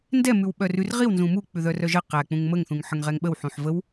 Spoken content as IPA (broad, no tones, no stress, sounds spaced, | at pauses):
n d ɛ m ʉ w ɓ œ r ʉ r ʁ i w n z ũ m u k͡p ʉ ð œ r œ ʒ ə q æ k͡p ũ ŋ m ə ŋ θ ũ ŋ ħ ə ŋ ʁ ɛ ŋ ɓ ə w ħ ũ ħ v ə w